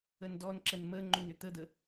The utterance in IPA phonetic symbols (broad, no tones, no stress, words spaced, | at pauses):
əndɔnǁən məŋ͡ǃʏn ʏt̪əd̪ə